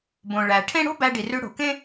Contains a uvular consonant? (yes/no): no